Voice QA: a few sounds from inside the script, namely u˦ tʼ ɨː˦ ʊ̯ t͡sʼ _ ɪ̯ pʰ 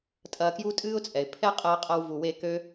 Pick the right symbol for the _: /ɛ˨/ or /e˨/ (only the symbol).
ɛ˨